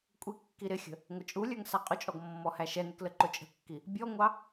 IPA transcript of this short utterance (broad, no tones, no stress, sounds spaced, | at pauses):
kʷʼ i kː i ɾ ɪ xʲ ə̤ | ŋʷ ə t͡ʃʼ u lʲ ə˞ ŋ s ɑ qʼ ʊ t͡ʃʼ ɔ ɡ mː ɔ h æ ʃ ɛ n ɪ k l ə ǃ ʊ t͡ʃʼ ə̤ kː i | bʲ ɔ ŋʷ ɑ